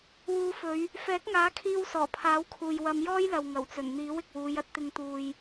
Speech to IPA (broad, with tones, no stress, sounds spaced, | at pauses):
w uː˨˧ f ɵ˨˧ ɥ | f ɛː˨˥ k̚ ŋ aː˨˥ kʰ iː˧ w s ɔː˨˩ pʰ aː˨˥ w kʰ uː˨ j w ɐ˨˧ m j ɔː˥ j l ɐ˨ w ŋ ɐ˨˩ w t͡s ɵ˨˩ n n̪ iː˨˥ w ɪ˨ k̚ w uː˨˧ j ɐ˧ t̚ t̪ ɪ˧ ŋ t̪ uː˨ j